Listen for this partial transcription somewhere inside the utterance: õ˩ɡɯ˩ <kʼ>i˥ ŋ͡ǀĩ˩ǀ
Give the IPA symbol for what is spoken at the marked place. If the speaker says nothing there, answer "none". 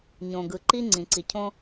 ǃ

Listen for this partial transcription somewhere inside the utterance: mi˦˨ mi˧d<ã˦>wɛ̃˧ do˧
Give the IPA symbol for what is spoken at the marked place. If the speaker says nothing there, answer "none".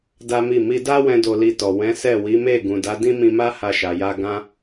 a˦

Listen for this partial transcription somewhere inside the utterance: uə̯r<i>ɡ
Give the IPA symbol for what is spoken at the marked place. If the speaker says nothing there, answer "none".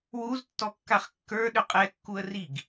i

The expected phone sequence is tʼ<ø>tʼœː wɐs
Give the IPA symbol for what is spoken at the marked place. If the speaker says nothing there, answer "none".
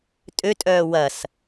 ø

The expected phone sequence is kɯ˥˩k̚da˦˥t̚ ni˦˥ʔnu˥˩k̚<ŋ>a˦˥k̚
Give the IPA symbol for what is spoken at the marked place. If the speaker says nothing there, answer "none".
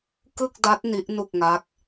ŋ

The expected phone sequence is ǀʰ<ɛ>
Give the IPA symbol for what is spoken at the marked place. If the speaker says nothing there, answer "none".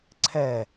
ɛ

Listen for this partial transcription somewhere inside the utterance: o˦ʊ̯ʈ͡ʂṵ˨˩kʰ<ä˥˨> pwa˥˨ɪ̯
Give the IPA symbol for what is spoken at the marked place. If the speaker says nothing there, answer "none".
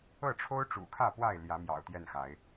ä˥˨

